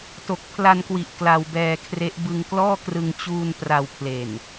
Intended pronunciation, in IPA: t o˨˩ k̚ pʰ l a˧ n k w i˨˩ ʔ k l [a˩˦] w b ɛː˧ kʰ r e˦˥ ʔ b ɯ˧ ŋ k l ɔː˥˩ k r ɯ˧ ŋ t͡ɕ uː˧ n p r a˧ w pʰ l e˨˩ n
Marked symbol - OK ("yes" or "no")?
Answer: no